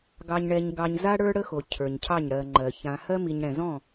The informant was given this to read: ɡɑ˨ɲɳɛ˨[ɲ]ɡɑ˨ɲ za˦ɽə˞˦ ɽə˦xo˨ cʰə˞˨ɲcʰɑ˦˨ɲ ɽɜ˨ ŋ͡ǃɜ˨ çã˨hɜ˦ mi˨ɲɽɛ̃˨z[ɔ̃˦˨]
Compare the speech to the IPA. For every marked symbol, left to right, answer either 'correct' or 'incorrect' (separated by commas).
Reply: correct, correct